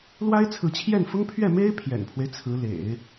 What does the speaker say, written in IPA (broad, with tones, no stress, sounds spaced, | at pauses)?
l w a˥ ɪ̯ t͡sʰ ɹ̩˧˥ t͡ɕʰ j ɛ˥˩ n f ʊ˥ ŋ pʰ ɥ ɛ˥˩ m e˥ ɪ̯ pʰ j ɛ̰˨˩ n pʰ w e˦ ɪ̯ t͡sʰ ɹ̩˧˥ l ḛ˨˩˦ ɪ̯